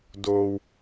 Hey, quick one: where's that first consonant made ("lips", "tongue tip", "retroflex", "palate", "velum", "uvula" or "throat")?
tongue tip